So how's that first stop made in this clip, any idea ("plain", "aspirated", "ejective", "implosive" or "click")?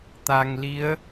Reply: plain